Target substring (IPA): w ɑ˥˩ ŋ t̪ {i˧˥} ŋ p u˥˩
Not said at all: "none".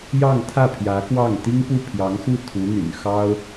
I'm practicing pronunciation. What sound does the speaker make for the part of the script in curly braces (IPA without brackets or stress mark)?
i˥